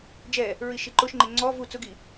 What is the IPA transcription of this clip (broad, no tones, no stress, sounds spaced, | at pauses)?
d͡ʒ ɛ | ɹ i ʃ i ǃ ʊ ʃ ŋ͡ǃ ɪ ŋ͡ǀ ɔ v u t͡s ʊ ɡ i